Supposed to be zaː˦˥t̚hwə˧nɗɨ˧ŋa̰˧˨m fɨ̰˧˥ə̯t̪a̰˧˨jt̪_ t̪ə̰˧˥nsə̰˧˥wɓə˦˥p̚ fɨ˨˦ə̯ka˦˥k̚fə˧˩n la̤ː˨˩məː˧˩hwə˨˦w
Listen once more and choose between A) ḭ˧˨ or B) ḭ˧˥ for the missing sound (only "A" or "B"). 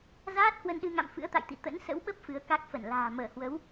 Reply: A